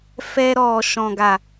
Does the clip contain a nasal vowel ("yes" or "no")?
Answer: yes